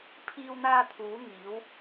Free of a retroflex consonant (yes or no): yes